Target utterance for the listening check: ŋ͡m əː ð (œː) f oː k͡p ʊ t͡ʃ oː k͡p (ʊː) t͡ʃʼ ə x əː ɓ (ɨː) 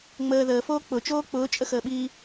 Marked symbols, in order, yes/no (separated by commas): no, yes, no